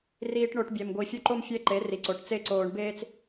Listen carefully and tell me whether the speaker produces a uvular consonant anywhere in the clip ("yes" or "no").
no